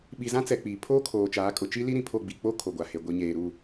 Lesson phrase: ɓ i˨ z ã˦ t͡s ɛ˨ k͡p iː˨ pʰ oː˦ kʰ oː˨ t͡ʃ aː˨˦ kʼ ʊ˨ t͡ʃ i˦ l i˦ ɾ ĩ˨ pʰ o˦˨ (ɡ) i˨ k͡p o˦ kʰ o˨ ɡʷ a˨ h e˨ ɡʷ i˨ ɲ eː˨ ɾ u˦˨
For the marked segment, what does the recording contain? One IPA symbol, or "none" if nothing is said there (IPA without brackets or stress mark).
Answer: ɡ͡b